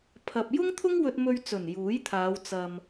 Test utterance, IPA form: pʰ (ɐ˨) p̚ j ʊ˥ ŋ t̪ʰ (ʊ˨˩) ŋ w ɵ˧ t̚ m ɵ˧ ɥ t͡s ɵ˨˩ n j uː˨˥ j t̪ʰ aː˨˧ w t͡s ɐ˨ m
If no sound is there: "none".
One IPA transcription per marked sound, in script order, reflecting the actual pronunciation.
ɐ˨, ʊ˥

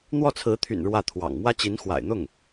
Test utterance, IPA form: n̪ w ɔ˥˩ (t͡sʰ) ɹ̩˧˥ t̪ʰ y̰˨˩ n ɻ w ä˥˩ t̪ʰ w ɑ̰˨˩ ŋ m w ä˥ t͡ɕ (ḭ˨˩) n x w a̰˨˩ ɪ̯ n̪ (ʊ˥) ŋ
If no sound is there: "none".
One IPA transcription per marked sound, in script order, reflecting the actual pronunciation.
t͡sʰ, i˧˥, ʊ˥˩

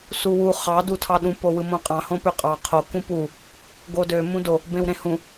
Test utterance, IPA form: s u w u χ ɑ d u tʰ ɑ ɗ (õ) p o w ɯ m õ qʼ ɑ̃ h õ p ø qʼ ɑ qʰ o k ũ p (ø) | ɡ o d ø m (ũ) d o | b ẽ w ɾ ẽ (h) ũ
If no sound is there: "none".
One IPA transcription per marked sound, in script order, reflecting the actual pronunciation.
ũ, u, ũ, h

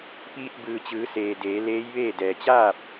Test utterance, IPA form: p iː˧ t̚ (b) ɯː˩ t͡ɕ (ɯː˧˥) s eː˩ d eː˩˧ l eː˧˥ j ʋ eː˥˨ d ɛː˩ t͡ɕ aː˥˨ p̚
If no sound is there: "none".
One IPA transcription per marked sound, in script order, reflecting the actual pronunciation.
b, ɯː˩˧

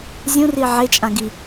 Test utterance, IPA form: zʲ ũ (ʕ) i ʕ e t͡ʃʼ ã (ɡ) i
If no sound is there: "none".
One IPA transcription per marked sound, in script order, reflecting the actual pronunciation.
r, ɡ

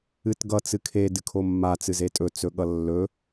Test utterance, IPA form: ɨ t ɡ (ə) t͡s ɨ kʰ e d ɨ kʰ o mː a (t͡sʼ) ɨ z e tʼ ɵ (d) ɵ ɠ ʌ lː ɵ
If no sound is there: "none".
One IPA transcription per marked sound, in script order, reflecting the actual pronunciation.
ʌ, t͡s, t͡s

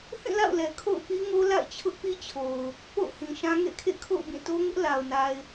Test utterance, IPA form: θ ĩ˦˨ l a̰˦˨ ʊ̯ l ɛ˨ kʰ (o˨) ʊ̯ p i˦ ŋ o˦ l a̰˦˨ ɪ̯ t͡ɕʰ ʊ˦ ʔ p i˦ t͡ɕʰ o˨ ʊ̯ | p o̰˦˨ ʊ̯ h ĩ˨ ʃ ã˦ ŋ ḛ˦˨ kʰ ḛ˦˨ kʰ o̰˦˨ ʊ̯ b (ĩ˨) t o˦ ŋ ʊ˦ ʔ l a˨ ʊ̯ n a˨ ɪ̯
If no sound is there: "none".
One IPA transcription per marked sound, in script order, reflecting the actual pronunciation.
o̰˦˨, ĩ˦˨

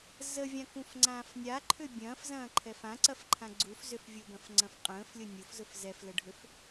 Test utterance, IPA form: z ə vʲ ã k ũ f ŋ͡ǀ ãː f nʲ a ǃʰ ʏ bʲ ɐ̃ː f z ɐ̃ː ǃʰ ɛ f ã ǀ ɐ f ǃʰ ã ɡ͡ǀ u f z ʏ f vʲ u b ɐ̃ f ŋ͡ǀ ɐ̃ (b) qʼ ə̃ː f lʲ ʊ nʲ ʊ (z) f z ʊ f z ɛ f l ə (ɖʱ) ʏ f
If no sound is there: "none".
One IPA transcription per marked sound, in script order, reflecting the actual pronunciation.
f, none, ɖʱ

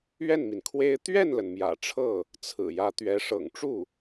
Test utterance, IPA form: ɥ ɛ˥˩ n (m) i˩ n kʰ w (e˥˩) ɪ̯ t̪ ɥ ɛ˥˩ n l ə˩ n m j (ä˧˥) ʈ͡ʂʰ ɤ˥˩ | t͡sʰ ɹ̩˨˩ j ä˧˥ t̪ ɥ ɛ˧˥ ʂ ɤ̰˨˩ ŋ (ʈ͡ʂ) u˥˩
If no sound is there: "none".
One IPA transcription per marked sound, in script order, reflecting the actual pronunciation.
m, e˥, ä̰˨˩, ʈ͡ʂ

